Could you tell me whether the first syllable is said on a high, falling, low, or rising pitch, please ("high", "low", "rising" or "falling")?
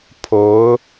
rising